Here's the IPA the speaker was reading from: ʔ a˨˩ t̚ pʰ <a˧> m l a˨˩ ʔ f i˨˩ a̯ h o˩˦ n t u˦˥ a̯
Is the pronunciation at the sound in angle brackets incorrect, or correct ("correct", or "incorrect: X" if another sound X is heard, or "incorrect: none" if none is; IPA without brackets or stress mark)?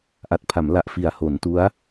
incorrect: a˩˦